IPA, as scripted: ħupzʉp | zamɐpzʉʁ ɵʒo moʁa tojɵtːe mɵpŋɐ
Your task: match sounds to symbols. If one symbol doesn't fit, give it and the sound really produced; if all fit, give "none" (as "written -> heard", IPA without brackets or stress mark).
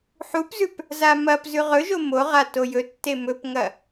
none